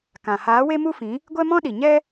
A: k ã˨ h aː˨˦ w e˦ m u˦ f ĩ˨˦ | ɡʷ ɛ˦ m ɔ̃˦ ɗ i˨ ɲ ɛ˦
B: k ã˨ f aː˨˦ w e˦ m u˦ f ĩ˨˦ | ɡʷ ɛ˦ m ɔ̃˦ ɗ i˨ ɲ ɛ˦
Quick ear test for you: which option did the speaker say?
A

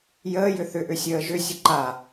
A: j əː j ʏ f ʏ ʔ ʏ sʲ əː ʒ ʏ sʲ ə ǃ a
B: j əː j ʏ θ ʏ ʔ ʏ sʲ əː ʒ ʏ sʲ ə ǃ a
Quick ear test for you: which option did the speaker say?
B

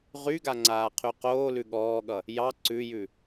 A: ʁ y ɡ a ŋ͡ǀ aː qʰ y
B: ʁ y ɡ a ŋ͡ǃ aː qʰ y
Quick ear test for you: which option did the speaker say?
A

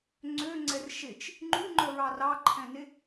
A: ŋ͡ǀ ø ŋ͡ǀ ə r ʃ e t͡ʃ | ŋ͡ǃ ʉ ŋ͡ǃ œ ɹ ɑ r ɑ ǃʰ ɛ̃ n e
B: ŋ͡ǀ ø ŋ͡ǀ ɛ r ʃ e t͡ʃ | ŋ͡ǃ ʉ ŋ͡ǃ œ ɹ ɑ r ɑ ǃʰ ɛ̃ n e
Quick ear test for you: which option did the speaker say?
B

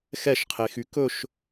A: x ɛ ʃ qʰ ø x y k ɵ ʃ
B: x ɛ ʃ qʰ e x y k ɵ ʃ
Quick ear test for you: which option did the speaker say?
B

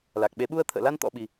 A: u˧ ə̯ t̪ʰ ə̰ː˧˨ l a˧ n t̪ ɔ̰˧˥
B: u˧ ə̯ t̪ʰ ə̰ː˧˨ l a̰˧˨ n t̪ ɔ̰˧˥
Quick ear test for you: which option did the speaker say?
A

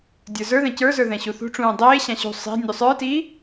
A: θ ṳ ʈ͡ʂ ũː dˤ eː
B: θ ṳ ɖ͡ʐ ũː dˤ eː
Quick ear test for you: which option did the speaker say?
A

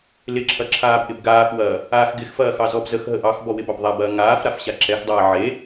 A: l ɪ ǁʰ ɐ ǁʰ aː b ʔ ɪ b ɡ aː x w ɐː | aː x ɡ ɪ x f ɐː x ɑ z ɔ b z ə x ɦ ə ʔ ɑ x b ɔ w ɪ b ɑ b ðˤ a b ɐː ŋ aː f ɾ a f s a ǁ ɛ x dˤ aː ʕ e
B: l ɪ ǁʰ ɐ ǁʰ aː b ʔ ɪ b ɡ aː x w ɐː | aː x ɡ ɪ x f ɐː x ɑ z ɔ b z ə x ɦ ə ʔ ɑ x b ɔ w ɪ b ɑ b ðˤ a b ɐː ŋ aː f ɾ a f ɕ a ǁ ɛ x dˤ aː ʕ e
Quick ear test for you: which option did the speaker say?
B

